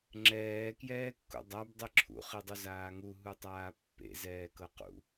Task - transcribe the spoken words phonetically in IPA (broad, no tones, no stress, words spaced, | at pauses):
ŋ͡ǁɛː kjɛːkːṵdˤab dˤiǁʰṵ χidˤuzaːŋu ɦutˤaːpːḛ zɛːkɤqṵ